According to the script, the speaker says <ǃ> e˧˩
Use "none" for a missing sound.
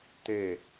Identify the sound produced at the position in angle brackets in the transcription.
t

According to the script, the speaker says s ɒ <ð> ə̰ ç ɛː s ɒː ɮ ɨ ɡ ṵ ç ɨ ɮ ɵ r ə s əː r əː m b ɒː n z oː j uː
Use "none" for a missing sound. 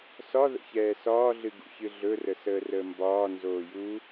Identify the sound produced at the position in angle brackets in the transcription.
ð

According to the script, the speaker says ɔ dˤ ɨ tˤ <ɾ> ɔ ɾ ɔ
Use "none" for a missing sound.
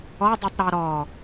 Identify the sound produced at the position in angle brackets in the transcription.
ɾ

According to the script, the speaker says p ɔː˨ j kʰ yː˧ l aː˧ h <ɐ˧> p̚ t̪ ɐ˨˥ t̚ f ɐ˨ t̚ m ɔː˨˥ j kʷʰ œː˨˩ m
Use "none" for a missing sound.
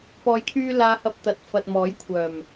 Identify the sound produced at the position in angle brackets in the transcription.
ɐ˧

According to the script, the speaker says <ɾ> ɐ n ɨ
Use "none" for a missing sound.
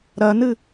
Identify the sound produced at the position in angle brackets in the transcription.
ɾ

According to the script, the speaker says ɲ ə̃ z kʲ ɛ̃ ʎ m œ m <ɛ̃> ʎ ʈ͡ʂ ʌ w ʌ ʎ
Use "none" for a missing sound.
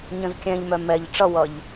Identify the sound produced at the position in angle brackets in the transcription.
ɛ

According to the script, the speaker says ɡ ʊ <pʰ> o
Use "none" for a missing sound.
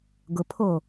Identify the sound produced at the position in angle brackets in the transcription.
pʰ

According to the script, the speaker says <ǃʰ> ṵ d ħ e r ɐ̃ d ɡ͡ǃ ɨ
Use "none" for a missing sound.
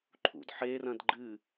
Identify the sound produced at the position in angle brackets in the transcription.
ǃʰ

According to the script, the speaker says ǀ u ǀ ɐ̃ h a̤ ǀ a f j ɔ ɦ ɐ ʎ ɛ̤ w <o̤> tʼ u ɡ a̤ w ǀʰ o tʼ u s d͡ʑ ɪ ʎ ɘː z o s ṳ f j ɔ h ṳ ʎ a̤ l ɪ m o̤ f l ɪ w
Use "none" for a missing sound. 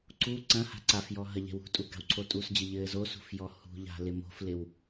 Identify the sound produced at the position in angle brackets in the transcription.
ṳ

